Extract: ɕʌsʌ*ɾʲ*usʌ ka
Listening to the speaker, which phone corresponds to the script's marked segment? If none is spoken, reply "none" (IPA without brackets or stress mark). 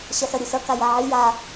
ɾʲ